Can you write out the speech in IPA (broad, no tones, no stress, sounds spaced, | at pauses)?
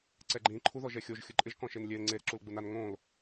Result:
ǀ ɛ ɡ͡ǃ ĩ ǃʰ u ð ɔ ʒ ɛ xʲ o ʒ xʲ ʊ ǃʼ ɪ ʒ k ɔ̃ ʃ e n lʲ e l ŋ͡ǀ e ɾ ɪ ǁ u l ɡ͡b u n a n ŋ õ l